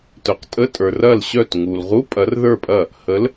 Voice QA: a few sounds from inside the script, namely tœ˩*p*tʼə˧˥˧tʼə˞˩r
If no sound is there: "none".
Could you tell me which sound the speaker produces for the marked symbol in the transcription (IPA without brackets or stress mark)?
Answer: q